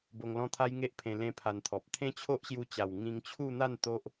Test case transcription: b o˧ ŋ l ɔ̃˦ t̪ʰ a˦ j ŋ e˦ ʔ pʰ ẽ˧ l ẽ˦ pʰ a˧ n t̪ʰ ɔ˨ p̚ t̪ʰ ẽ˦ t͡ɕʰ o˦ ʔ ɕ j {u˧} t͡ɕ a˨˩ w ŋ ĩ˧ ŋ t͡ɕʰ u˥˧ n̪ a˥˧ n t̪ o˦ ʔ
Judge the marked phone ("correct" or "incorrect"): correct